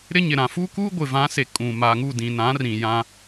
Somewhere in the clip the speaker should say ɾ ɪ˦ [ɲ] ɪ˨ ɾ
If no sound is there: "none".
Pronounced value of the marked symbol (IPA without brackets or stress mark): ɲ